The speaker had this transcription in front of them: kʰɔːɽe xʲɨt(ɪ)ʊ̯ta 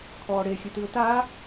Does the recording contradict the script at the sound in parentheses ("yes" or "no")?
yes